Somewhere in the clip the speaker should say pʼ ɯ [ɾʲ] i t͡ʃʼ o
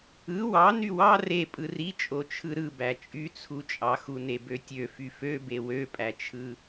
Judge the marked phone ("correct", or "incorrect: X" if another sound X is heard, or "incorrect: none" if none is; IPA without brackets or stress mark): incorrect: r